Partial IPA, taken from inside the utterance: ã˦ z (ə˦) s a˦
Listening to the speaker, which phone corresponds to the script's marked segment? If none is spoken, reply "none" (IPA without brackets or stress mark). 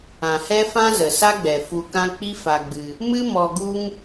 ə˨